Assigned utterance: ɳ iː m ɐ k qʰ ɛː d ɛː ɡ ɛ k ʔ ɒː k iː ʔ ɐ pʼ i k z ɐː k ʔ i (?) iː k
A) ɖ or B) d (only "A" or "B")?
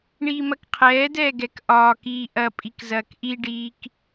A